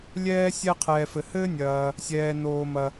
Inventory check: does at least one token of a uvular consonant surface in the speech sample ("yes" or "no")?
yes